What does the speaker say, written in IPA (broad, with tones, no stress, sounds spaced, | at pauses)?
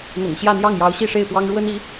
n̪ ʊ̰˨˩ ŋ ɕ j ä˥˧ n̪ j ɑ˥˩ ŋ j ɑ˧˥ ʊ̯ ɕ i˥˧ ʂ e˥˩ ɪ̯ p w ɑ˥ ŋ ɻ w ə˥ n i˧˥